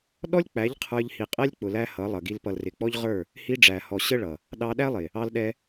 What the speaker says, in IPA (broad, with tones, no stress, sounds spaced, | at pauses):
ɗ ɔ˦ lʲ k͡p æ˨˦ ʎ qʰ ə˞˧ ʎ h i˨ qʼ ɛ˦ lʲ k͡p ʊ˨ l æ˧ h ʌ˨˦ lˠ ʌ˨ ɡ i˧ l p ʌ˨ l r ɪ˨ k͡p ɔ˦ ʎ ʁ ə˞˦˨ | h i˧ ɖ͡ʐ æ˨ h ɔ˨ ɕ ə˦ ɭ ʌ˨ | ɗ ɑ˧ ɗ æ˦ lˠ ɪ˨ | ɑ˧ l ɗ ɛ˧